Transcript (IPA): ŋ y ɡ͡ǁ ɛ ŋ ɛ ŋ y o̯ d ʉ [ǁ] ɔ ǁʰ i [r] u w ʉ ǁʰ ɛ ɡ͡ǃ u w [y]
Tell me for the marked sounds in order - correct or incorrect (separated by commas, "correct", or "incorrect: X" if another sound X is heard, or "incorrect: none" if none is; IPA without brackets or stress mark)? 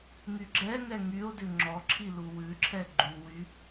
incorrect: ŋ͡ǁ, incorrect: l, correct